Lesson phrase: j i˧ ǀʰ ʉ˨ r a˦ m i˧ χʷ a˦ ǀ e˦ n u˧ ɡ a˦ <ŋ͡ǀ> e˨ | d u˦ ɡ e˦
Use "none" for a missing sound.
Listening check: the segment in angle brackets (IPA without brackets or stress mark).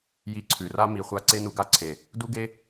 ǀʰ